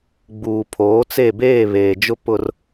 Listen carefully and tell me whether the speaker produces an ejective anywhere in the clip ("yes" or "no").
no